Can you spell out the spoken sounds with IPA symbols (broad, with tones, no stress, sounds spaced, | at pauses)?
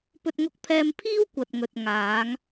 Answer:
p ɵ˥ t̚ ŋ ʊ˥ k̚ pʰ ɛː˥ m pʰ iː˥ w kʷ ɐ˨ t̚ ŋ ɵ˨ t̚ ŋ aː˨˧ ŋ